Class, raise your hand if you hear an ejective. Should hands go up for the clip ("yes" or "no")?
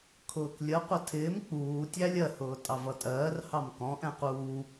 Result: yes